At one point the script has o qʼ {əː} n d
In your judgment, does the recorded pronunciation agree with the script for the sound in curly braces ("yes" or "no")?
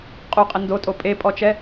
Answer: no